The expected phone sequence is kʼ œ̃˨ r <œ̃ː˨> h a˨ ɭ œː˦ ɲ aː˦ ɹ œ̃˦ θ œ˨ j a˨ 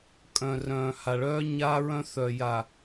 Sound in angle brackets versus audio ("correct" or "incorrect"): correct